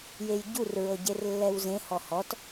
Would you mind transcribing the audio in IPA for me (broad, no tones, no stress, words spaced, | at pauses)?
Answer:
jejɟur ɹɤɟerlːɛwzẽ hɔhɔt